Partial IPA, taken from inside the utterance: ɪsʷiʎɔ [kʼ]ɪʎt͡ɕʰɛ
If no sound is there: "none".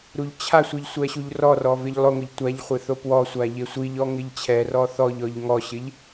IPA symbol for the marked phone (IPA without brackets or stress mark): ŋ